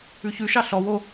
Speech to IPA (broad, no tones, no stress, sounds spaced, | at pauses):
ʉ ç ʉ ʃ ɑ ɬ ɔ w o